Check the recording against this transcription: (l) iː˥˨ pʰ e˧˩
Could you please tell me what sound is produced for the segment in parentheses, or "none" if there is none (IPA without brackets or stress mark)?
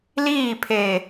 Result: l